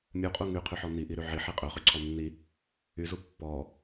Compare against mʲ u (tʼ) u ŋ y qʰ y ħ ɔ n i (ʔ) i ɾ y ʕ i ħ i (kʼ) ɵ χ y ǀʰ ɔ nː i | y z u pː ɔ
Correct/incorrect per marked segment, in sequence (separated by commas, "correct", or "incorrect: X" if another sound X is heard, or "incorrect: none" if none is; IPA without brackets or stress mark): incorrect: qʼ, correct, incorrect: qʼ